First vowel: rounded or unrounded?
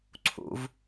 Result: rounded